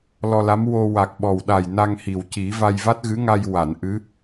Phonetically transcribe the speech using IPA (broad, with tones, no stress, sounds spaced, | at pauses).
l ɔ˧ l a˧˥ m w o˧ w a˨˩ k̚ ɓ ɔ˨˩ w ɗ a˨˩ j n a˧ ŋ h i˨˩ w c i˨˩˦ v a˧ j v a˦˥ t̚ ɣ ɨ˧˥ ŋ a˧ j w a˨˩˨ n ʔ ɨ˧˥